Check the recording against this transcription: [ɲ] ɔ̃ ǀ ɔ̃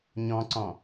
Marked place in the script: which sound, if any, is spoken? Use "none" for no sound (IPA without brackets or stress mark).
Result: ɲ